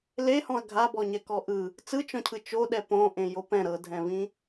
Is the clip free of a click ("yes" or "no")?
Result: yes